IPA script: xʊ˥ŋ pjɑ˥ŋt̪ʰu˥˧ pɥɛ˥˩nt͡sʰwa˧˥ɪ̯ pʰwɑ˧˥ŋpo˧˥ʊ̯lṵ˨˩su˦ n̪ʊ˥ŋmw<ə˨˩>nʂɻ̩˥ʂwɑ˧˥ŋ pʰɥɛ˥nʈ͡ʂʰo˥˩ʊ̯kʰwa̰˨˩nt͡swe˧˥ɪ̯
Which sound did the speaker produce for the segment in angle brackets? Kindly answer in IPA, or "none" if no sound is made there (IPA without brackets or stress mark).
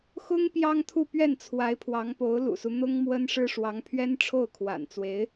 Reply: ə˥